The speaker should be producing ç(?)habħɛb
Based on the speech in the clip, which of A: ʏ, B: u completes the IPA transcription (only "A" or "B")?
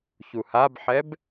B